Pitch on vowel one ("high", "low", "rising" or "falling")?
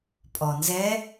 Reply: low